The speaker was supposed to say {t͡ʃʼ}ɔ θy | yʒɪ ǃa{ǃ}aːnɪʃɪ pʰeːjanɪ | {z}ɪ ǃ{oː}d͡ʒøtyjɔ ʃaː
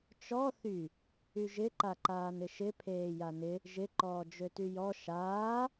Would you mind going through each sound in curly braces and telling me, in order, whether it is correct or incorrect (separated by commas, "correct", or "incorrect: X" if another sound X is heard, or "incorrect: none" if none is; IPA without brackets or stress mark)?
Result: incorrect: t͡ʃ, correct, incorrect: ʒ, incorrect: ɔː